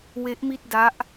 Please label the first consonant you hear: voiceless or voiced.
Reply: voiced